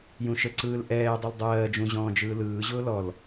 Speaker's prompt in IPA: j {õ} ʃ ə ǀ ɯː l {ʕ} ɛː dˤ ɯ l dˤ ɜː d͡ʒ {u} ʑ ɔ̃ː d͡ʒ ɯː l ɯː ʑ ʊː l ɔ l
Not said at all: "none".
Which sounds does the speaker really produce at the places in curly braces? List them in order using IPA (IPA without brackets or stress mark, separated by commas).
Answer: ũ, ʔ, ũ